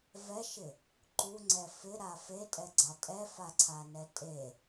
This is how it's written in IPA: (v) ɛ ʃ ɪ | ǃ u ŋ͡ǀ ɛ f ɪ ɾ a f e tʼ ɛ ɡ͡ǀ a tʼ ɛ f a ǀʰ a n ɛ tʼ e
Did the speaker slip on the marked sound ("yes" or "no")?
no